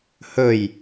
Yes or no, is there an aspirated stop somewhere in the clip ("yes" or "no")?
no